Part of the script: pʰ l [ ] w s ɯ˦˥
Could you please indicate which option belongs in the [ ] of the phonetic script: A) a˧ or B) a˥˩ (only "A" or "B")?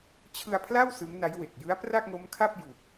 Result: B